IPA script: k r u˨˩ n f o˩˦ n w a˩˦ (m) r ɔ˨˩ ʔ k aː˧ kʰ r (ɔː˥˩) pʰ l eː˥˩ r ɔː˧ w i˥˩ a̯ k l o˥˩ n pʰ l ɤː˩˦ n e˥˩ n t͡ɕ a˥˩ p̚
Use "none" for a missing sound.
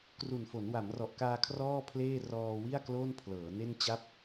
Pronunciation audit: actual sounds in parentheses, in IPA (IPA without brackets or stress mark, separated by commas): m, ɔː˥˩